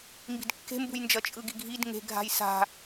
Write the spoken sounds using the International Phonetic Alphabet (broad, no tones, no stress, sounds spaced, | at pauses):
m b i̤ d kː e̤ m b ṳ j n d͡ʒ ʌ t͡ʃʼ ɯ ɡ i ɡʱ i d ŋ e̤ ɡʱ a̤ j s a̤